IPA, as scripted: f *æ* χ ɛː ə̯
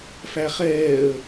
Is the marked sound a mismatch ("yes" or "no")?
no